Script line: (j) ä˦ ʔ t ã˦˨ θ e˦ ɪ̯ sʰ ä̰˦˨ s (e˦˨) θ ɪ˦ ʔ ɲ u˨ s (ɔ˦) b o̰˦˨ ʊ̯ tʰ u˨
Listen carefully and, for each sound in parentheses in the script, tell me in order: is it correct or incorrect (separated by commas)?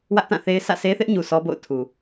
incorrect, incorrect, correct